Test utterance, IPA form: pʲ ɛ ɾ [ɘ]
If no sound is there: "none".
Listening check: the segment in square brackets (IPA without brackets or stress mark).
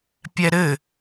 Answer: ɘ